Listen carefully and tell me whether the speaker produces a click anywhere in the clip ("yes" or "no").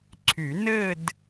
yes